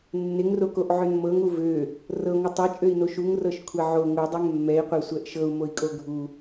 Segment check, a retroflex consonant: absent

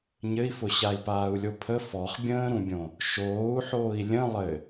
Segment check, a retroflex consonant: absent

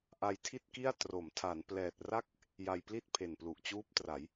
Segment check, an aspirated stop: present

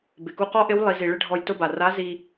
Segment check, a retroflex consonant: present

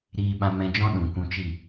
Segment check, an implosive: present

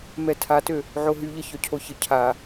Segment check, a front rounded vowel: present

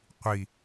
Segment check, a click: absent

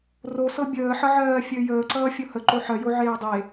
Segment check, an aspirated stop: absent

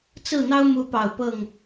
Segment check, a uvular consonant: absent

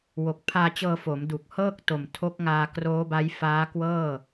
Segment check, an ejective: absent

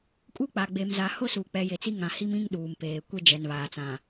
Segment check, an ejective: present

